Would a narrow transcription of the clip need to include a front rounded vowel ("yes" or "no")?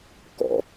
no